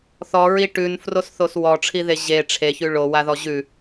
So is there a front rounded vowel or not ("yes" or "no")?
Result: no